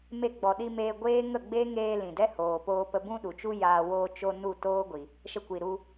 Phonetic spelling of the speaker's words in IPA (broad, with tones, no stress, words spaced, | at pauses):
me˧ɡ͡bɔ˨ɗi˧ meː˧ɡʷeː˦ ŋə˦˨ɡ͡be˦ ŋeː˧ lĩ˨dɛ˦hoː˨poː˧ pə˧bũ˦ɗu˨t͡ʃu˦ jaː˧ woː˧t͡ʃo˧ nu˦˨toː˦ɡʷi˨ | ʃə˧kʷi˨ɾu˧